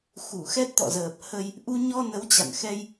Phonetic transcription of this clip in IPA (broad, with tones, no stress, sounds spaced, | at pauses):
x u˧˩ x ɛ˦˥ t̚ t̪ ɔ̰˧˨ z əː˨˩ p̚ h ə˧ j | ʔ u˧ ɲ ɔ˧ n ə˨˦ w t͡ɕ a̰˧˨ n x ɛ˧ j